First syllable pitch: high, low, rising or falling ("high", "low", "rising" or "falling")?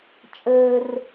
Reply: high